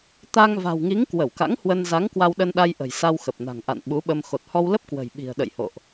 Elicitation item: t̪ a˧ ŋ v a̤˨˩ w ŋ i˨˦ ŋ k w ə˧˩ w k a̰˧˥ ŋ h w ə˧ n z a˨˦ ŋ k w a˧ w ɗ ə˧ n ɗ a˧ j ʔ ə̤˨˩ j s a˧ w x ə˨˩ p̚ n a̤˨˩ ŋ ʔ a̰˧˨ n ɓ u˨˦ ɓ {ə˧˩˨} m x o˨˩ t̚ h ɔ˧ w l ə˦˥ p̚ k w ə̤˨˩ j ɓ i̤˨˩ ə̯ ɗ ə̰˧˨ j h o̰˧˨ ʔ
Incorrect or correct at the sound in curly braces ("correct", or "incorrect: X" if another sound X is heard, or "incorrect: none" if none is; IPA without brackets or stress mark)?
incorrect: ə˧